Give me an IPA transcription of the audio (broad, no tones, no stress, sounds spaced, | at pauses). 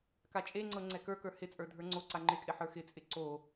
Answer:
k a t͡ʃʼ e ŋ͡ǀ ɤ ŋ͡ǀ ɛ k ə˞ k ə˞ h ɪ t͡sʼ ə˞ dʱ ə˞ ŋ͡ǀ o ǀ a ŋ͡ǃ ɪ kʼ ɪ ħ ə˞ x ɪ t͡sʼ ɪ ǀ o